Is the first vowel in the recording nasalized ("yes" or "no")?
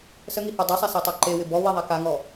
no